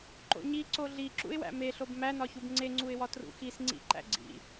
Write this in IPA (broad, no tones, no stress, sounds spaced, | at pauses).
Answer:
ǃ o̰ ɲ i ǀ o ɮ i ǁ ṵ ɪ̯ w æ̰ m e ɬ o b m æ n ɒ ç u b ŋ͡ǀ e ŋ͡ǀ u ɪ̯ w ɒ t r ṵ x i s ŋ͡ǀ ḭ ǃ æ̰ ɡ͡ǀ ḭ